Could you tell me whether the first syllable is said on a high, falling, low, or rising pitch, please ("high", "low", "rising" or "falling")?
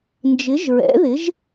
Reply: rising